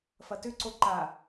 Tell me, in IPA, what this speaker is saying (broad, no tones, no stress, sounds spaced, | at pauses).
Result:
f ɐ t ʏ ǀ o ǃ a